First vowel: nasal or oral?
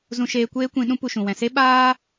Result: nasal